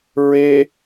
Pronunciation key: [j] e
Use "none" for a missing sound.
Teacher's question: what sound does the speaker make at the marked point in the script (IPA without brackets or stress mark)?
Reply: ɹ